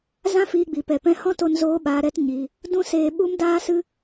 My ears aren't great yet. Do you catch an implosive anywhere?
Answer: yes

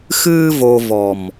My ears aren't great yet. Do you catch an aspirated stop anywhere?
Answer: no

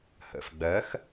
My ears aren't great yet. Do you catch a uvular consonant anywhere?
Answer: no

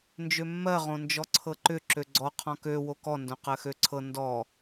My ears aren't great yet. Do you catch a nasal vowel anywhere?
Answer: yes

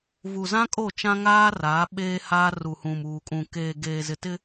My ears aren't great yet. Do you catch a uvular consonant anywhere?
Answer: no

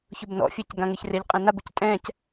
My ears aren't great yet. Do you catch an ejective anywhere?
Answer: yes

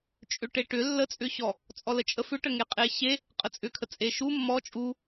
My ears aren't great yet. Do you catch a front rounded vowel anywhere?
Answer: yes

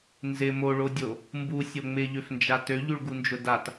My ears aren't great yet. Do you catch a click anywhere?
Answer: no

